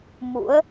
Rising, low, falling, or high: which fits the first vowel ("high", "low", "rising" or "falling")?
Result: rising